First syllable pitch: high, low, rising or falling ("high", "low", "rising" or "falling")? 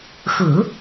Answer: low